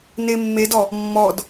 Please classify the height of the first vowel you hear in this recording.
mid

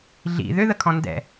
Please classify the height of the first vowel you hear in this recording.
high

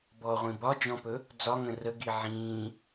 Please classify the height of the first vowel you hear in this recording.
mid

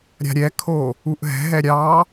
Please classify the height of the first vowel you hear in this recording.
low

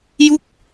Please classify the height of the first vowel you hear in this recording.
high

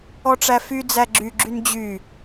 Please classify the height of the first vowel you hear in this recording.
mid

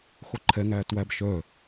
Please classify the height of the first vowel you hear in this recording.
mid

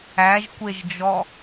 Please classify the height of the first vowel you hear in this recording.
low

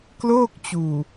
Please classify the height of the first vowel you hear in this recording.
mid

